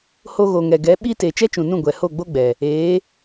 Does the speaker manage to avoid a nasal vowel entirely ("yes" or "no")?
no